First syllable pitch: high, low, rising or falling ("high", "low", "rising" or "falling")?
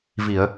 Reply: low